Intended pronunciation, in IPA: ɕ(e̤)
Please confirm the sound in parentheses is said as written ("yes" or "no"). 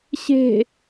yes